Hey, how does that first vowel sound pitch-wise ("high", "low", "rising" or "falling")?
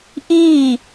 falling